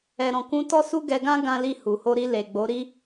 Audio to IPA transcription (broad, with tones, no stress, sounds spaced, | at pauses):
ɛ˨ ɾ ɔ̃˨ k ũ˧ t ɔ˦ s u˦ ɡ ɛ˧ ɡ ã˦ ɡ ã˦ l i˦˨ h u˨ h o˧ ɾ i˧ l e˨ ɡ͡b o˨˦ ɾ i˦